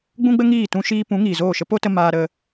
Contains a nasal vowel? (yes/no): yes